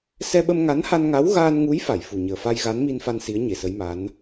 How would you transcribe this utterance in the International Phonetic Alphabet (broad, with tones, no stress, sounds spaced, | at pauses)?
s ɛ˧ ɓ ə˧ m ŋ a˧˥ n h a˧ n ŋ a˧˥ w ɣ aː˧ n ŋ u˧˥ j f a˨˩˨ j f u˨˩ ɲ əː˨˩ f a˧ j ɣ a˧˥ n m i˧ n f a˧ n s i˧˥ ə̯ ɲ e˨˩˨ s ə˧˥ j m a˧˥ n